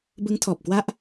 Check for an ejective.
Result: absent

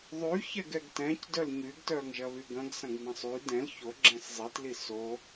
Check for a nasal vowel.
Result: present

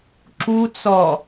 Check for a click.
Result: present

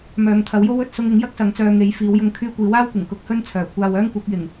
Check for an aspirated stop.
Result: present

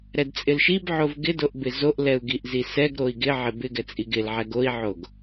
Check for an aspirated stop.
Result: absent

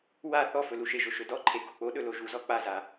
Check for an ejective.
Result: absent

